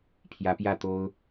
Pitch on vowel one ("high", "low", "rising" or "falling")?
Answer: rising